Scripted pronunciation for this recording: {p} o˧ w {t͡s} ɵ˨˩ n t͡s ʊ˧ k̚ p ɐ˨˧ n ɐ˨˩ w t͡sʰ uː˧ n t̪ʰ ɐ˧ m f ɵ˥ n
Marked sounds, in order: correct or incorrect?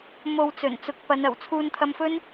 incorrect: m, correct

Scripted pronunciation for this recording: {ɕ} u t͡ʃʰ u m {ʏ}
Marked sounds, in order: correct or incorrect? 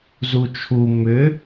incorrect: z, correct

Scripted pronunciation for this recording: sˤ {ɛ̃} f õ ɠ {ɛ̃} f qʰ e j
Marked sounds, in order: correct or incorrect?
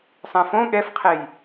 correct, incorrect: ɛ

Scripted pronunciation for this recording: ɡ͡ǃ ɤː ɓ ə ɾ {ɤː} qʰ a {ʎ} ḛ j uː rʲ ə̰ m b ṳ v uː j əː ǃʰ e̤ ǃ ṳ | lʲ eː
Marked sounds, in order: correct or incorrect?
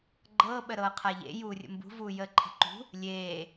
correct, correct

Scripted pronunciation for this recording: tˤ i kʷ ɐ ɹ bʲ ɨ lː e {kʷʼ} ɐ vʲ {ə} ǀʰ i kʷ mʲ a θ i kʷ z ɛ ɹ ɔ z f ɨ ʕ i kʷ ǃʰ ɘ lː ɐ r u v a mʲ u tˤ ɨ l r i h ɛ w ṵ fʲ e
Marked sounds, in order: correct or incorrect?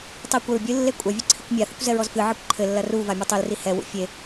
correct, incorrect: ɨ

